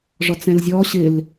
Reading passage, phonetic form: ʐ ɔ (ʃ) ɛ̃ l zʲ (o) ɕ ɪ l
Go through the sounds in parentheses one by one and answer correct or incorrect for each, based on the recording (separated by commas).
incorrect, incorrect